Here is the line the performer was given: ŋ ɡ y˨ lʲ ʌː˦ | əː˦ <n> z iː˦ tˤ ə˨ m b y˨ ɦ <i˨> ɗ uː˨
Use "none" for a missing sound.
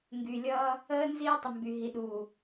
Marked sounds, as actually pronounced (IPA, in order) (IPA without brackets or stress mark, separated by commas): n, i˨